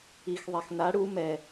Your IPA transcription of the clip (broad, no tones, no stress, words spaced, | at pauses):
ix ðˤaxna ɽu mɛ